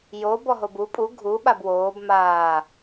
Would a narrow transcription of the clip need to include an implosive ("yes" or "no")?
yes